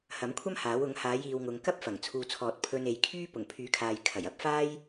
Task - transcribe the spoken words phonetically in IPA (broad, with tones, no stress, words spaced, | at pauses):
hɐ˨˥mkʷʰɐ˥mhaː˨˥w ʊ˨˥ŋhaː˨˥jiː˨wŋʊ˨˧ŋ kɐ˥p̚ fɐ˨˩ŋt͡sʰuː˨t͡sʰɔː˨t̚ pʰɵ˧ne˨jkʰyː˥ pʊ˨˩ŋpʰyː˨˥kʰaː˨j kʰɐ˨˩jɐ˧p̚faː˥j